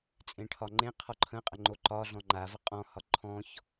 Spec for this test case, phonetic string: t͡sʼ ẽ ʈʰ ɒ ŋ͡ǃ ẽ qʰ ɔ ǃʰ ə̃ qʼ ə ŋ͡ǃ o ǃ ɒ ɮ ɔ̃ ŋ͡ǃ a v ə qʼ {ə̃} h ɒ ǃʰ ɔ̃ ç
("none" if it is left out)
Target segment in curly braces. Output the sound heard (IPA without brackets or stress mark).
ɔ̃